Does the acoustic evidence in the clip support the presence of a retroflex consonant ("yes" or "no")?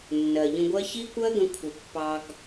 no